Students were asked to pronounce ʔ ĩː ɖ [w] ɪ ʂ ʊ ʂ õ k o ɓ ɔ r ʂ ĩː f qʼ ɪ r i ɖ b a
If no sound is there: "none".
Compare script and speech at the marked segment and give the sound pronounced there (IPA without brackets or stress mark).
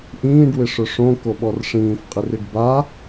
w